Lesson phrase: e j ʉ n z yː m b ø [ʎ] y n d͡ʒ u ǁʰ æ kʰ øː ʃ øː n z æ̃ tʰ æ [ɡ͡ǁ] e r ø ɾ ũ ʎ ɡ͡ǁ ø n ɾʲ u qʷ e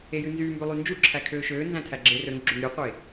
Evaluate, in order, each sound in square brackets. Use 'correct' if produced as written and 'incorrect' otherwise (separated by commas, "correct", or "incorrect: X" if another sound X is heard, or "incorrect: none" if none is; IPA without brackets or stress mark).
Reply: incorrect: lˠ, correct